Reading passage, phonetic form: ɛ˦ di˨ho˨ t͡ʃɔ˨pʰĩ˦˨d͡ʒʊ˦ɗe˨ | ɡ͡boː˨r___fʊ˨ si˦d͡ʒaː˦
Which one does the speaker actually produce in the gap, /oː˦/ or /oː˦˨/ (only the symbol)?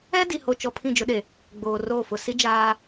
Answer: oː˦˨